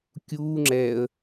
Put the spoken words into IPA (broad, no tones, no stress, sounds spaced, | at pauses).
kʲ uː ŋ͡ǁ ɛ ə̯